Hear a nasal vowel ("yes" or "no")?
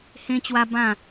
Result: yes